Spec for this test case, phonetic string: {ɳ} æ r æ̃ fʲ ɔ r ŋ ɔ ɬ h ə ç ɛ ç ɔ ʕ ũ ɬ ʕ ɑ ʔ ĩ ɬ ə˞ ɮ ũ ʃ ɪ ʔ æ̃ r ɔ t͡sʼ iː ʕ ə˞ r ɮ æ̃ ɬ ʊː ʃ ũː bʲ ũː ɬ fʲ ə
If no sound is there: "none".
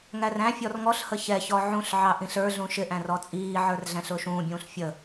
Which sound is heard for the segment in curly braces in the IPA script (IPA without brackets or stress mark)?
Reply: ŋ